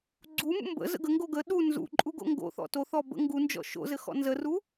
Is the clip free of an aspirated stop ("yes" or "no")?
yes